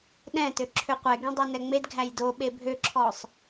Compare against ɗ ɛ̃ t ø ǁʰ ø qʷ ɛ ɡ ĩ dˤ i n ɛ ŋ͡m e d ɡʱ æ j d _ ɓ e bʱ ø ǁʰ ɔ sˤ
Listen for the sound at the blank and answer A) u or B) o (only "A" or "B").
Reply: B